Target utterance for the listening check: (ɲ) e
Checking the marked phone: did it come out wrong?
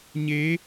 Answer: no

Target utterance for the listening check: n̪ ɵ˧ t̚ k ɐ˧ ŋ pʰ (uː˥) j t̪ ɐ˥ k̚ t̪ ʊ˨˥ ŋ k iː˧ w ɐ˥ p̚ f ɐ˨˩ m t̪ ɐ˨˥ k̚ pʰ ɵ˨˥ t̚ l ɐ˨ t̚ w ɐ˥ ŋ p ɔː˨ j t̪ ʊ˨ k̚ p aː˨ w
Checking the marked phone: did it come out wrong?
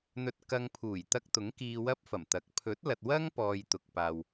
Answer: yes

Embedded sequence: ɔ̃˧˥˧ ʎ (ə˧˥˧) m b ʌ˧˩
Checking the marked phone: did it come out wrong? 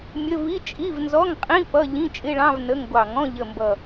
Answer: yes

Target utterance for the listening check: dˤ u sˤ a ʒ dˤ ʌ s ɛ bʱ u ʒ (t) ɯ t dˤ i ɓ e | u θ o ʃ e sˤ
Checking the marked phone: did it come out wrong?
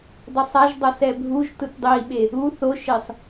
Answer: no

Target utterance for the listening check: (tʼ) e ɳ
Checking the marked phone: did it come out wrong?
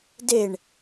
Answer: yes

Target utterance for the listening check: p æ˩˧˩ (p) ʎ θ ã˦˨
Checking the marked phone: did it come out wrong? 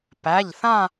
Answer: yes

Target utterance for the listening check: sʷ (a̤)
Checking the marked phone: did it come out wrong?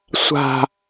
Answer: no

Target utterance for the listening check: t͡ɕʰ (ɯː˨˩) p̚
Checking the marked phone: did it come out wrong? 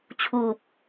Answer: yes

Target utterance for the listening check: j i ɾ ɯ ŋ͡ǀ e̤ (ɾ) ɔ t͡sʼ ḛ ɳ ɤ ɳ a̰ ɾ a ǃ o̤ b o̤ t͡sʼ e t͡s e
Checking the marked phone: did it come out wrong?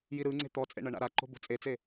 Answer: yes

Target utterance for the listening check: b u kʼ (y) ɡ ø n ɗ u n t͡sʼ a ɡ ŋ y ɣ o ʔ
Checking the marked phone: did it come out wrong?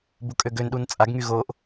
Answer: yes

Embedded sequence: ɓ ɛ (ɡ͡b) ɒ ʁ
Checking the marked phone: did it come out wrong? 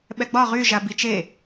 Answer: no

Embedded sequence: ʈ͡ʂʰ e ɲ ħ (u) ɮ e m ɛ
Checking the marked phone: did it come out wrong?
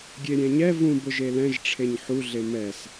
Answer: no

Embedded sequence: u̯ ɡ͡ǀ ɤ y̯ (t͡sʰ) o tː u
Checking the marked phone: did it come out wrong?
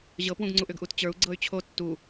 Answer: yes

